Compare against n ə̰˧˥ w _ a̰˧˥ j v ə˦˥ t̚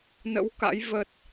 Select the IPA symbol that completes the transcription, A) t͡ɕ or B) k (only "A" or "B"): B